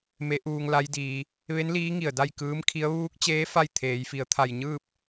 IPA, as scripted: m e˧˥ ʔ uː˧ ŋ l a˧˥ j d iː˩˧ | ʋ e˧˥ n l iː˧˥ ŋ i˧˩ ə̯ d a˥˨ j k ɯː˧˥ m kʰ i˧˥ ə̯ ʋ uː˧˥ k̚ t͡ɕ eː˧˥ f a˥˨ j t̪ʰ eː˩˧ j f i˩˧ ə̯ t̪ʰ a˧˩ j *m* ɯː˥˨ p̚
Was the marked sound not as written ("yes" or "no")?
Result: yes